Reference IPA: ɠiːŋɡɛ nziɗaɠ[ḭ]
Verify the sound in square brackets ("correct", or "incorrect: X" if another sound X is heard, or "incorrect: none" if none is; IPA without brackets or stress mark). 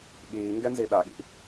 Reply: correct